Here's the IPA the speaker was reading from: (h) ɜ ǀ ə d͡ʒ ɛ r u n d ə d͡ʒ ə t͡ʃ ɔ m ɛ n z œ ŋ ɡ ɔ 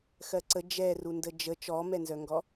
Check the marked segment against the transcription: incorrect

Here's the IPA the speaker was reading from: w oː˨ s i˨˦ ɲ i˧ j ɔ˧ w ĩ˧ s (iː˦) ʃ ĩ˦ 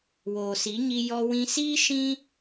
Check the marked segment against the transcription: correct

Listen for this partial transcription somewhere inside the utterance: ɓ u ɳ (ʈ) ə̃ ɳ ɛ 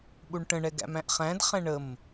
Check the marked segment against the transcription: correct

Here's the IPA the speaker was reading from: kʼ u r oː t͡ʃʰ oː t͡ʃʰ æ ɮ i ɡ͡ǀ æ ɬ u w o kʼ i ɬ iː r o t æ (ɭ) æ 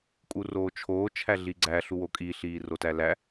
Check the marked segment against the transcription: incorrect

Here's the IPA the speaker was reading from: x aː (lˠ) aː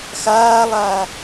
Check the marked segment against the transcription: correct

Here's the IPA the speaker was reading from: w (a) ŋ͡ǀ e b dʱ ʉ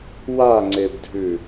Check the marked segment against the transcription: correct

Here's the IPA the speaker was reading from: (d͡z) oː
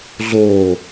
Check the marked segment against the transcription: incorrect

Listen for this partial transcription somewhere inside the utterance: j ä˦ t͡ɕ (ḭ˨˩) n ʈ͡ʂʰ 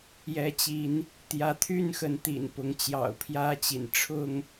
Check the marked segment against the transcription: correct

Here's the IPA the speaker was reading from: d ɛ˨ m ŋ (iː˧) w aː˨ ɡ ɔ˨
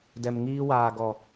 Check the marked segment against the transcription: correct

